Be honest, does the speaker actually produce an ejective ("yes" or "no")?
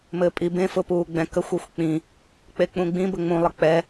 yes